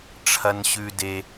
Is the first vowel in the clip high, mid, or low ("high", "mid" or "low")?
low